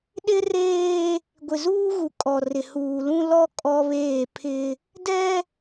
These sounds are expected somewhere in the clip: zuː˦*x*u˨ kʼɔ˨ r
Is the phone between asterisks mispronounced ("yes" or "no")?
yes